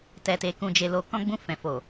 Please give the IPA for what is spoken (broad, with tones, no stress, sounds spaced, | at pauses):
t ɛ˨ t e˨ k ũ˨ d͡ʒ e˨ l o˨ k ɔ̃˧ ɡ͡b ũ˧ f ɛ̃˨ f o˨